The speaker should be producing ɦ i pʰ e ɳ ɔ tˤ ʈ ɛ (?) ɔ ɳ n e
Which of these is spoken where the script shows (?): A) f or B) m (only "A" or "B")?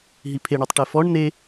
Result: A